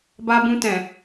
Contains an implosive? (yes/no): no